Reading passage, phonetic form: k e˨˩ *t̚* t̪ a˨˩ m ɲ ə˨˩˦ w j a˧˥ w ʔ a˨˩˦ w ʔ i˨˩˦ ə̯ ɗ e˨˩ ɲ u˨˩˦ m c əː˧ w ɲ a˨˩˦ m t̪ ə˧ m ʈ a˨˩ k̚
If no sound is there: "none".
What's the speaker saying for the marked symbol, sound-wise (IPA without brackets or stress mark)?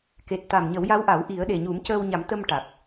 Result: t̚